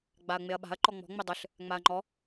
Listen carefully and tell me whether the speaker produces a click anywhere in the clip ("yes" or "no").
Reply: yes